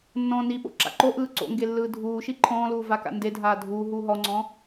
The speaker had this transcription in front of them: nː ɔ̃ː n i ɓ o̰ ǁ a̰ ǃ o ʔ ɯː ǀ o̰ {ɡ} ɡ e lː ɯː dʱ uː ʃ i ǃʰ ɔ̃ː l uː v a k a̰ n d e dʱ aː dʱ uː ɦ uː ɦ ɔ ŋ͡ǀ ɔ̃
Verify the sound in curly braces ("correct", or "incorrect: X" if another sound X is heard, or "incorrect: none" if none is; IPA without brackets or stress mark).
incorrect: ŋ